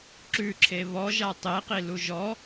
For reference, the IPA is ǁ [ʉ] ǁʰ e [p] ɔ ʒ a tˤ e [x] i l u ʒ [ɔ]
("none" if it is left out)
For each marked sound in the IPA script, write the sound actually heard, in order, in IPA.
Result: ʉ, β, q, ɔ

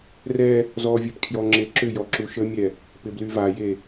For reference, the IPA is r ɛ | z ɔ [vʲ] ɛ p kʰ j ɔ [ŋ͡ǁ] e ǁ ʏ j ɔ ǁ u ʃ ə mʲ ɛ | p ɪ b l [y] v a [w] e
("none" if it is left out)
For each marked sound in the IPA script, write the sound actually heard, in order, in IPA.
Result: vʲ, ŋ͡ǁ, y, j

